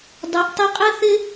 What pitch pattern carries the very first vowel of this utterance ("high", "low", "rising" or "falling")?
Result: rising